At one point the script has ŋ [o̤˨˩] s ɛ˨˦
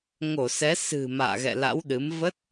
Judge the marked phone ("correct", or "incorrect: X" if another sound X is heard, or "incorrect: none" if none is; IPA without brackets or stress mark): incorrect: o˧˩